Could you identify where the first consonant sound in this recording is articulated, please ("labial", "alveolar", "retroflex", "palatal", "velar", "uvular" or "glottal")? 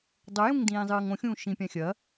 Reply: alveolar